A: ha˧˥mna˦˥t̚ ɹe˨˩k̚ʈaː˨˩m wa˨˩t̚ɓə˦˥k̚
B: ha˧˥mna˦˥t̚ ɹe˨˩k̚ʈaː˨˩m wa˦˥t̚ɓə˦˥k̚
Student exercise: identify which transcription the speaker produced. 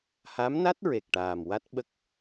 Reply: B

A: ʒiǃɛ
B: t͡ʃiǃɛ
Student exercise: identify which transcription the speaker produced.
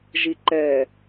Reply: A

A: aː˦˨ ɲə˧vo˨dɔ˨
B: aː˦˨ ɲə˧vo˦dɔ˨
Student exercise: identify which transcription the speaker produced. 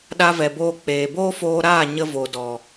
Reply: A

